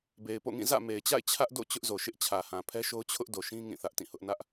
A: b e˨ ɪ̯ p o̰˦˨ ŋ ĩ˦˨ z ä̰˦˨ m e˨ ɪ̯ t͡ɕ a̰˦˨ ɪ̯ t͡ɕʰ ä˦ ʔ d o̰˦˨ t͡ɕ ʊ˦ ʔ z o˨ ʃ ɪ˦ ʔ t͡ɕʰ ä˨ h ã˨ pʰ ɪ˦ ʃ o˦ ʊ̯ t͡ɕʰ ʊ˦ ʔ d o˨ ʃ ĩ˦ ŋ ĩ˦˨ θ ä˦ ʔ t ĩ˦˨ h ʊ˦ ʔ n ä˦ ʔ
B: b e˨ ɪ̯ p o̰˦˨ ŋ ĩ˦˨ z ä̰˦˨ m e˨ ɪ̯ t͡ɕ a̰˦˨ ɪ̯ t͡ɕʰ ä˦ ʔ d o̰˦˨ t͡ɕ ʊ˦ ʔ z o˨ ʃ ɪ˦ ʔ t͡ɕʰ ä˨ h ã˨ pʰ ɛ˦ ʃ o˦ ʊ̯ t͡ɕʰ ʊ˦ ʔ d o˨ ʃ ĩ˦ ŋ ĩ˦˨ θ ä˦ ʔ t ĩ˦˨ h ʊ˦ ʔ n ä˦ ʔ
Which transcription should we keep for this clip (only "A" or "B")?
B